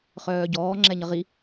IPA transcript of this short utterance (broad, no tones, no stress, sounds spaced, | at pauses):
χ œː ɟ ɔː ŋ͡ǁ ɛ ɲ ə ʁ i